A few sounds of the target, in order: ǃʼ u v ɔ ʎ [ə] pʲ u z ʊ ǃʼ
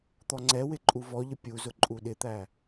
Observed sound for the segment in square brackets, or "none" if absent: ə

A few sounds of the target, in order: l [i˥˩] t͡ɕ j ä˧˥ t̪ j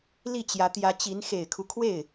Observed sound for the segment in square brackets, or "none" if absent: i˥˩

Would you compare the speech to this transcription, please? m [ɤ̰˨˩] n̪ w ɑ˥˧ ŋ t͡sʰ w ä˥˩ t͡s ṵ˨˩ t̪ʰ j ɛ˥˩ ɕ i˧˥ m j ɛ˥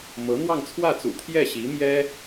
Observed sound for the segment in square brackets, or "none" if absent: ɤ˧˥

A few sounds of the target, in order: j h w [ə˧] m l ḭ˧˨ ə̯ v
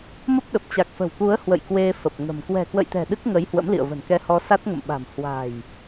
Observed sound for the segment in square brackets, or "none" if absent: ə̰˧˥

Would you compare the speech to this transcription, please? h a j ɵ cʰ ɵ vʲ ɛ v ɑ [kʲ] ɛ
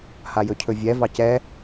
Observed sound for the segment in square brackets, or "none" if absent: c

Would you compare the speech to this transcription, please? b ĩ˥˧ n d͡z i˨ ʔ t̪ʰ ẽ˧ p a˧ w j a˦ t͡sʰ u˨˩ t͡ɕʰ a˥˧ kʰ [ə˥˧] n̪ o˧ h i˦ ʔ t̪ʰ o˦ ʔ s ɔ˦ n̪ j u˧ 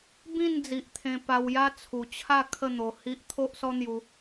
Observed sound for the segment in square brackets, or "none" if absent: ə˥˧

